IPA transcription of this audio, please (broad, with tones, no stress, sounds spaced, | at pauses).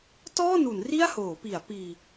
t ɔː˥˩ n u˩˦ n r i˥˩ a̯ h oː˩˦ p i˩˦ a̯ p iː˧